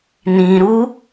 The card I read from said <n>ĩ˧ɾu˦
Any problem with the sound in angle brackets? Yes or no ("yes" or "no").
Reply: no